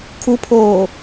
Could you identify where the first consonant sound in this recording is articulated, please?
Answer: velar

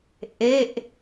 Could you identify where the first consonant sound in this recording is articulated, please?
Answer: glottal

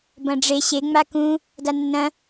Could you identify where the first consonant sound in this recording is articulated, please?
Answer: labial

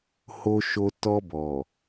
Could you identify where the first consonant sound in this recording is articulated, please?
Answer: glottal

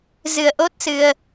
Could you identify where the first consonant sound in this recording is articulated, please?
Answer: alveolar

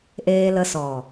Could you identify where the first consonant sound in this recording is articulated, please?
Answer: glottal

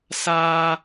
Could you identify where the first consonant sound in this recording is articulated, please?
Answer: alveolar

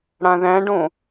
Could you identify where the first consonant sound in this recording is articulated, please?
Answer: retroflex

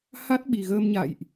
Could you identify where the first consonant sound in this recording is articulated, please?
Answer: glottal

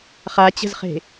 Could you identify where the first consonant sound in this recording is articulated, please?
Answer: uvular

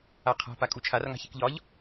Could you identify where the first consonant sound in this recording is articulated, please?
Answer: uvular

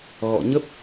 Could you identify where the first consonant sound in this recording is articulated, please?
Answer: velar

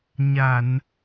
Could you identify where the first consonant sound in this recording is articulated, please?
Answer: palatal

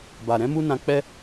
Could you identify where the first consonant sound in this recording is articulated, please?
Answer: labial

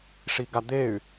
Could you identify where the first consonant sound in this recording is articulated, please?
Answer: retroflex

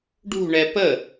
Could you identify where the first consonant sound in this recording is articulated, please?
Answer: retroflex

